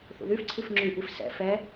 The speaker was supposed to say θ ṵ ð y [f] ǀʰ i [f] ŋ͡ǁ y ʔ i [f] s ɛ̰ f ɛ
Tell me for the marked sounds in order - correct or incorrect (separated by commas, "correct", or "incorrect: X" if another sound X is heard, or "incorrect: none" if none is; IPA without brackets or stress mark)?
correct, correct, correct